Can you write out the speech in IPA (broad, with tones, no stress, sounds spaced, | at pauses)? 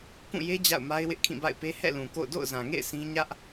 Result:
k ũ˦˨ j e˦ d͡ʑ a̰˦˨ ʊ̯ m a˦ ɪ̯ w ɪ˦ ʔ kʰ ĩ˦˨ b a̰˦˨ ɪ̯ p e˦ h ɛ̰˦˨ l ũ˨ k o̰˦˨ ʊ̯ d o̰˦˨ ʊ̯ z ã˨ ŋ ḛ˦˨ ɪ̯ s ĩ˦ ɲ ä˦ ʔ